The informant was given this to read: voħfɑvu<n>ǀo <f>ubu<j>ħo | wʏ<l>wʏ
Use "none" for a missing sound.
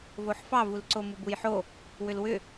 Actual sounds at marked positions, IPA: l, m, j, l

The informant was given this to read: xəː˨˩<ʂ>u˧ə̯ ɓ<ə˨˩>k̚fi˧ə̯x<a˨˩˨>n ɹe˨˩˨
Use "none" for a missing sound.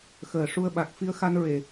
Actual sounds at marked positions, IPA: ʂ, a˨˩, a˧

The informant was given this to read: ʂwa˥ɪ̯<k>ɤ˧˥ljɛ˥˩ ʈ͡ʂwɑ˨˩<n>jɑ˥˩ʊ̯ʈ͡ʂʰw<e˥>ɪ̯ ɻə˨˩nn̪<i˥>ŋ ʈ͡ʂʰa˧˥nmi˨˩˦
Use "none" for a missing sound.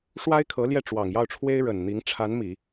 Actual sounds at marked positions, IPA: kʰ, ŋ, e˥, i˧˥

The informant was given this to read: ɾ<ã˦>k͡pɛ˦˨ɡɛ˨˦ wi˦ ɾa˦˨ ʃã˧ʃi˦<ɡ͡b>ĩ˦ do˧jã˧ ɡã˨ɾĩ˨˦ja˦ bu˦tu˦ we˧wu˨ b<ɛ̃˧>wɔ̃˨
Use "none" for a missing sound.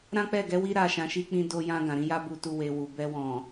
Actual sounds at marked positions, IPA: ã˦, k͡p, ɛ˧

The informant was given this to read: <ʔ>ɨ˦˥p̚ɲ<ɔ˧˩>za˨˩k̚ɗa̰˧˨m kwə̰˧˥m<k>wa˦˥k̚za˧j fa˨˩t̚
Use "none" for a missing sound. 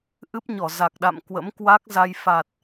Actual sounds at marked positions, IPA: ʔ, ɔ˧˩, k

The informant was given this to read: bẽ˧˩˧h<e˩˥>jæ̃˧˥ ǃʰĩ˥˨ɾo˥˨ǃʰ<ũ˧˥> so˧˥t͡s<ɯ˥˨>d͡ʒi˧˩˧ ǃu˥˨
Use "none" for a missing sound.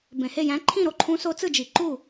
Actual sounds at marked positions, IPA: e˥˨, ũ˧˥, ɯ˥˨

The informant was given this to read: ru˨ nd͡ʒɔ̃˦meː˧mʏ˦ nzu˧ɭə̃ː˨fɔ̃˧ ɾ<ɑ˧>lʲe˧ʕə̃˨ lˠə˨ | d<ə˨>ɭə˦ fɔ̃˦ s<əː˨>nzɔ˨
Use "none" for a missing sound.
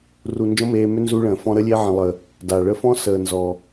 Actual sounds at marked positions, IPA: ə˧, a˨, əː˨

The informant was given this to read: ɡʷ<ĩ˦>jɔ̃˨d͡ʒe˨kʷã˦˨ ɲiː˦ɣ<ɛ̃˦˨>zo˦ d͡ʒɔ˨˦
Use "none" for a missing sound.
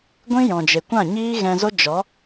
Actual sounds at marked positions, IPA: ĩ˦, ɛ̃˧

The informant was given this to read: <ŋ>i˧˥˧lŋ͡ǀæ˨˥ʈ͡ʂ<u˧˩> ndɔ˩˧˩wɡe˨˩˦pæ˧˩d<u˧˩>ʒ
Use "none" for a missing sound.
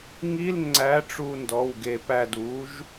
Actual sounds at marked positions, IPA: ŋ, u˧˩, u˨˥

